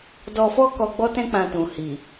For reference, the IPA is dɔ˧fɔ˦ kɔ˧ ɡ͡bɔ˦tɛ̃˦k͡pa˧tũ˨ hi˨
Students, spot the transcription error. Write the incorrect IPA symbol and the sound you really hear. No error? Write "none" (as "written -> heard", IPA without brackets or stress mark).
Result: a˧ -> ã˧